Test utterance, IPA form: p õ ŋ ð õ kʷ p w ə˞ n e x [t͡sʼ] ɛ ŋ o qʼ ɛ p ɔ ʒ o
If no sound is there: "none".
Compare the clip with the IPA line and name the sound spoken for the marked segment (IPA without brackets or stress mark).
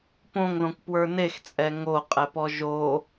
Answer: t͡sʼ